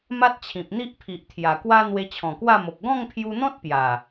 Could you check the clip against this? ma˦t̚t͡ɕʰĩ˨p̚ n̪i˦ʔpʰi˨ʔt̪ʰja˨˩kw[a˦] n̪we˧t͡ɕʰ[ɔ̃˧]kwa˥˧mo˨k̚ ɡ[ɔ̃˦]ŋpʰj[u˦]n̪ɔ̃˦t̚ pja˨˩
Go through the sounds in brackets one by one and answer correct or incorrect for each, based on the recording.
correct, incorrect, incorrect, incorrect

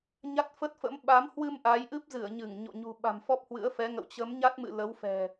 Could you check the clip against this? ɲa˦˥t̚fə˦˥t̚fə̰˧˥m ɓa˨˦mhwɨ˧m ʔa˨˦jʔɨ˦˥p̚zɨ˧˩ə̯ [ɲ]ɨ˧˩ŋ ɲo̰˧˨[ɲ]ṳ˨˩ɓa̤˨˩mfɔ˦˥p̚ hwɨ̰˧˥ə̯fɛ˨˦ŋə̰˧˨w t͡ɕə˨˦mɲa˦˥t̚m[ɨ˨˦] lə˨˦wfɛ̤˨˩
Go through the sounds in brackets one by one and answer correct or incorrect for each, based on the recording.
correct, correct, incorrect

